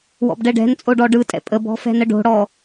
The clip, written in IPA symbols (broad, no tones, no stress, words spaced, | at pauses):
wɔ̰bɖɛɖɛ̤nt͡sʼo ɖɔɖɯtʼɛ̰ pʼəbɔ̤ fɛ̤nəɖo̤ɽɔ